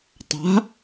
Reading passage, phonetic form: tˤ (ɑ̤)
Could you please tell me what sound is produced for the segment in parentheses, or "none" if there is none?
a̤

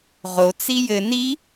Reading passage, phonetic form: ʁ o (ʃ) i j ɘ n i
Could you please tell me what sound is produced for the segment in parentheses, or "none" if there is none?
t͡s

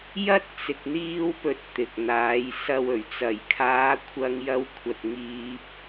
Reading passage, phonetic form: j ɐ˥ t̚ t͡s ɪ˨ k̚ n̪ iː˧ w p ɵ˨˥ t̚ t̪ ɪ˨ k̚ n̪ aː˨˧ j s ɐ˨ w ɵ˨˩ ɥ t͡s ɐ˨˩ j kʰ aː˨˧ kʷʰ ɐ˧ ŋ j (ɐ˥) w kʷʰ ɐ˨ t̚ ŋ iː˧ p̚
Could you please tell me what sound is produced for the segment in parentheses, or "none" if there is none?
ɐ˧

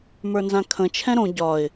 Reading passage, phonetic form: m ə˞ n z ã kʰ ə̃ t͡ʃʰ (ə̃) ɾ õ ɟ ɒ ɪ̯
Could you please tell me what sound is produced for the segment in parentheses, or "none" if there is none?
ɛ̃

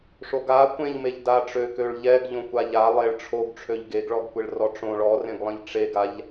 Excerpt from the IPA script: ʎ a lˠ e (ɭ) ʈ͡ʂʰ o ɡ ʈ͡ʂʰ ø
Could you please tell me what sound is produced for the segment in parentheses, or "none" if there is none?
ɭ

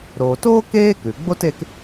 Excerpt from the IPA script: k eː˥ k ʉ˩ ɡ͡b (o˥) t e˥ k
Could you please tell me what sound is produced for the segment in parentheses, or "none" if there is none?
o˥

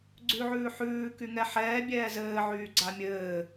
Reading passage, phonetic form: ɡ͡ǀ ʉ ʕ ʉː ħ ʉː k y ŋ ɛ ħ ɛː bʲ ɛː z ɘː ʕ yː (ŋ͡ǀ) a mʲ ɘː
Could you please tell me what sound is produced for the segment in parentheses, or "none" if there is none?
ɡ͡ǀ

